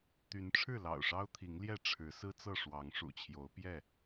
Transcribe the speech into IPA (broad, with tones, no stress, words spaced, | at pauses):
t̪y˨˦n ʈ͡ʂʰɻ̩˥˨lɑ̰˨˩ʊ̯ʂɑ˦ʊ̯t̪ʰi˨˦ŋ ljɛ˥˨ʈ͡ʂʰɻ̩˨˦sɹ̩˦t͡sɤ˥˨ ʂwɑ˨˦ŋʂṵ˨˩t͡ɕʰjo˨˦ʊ̯ pjɛ˥˨